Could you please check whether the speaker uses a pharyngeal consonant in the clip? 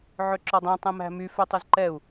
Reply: yes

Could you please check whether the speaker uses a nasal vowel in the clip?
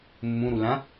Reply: yes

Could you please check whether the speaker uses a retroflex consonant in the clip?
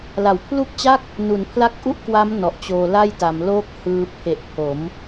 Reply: no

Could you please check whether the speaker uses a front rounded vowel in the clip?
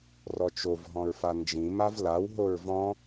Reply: no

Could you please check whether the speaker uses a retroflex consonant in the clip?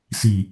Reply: no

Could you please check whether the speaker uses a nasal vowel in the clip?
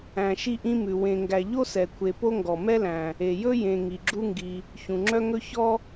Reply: yes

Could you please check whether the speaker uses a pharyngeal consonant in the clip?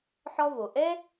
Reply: yes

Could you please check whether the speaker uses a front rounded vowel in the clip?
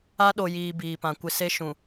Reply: no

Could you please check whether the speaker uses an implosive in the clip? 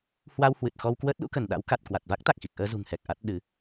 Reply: yes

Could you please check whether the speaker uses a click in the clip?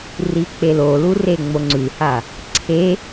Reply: yes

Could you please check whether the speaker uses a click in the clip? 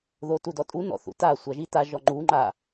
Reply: yes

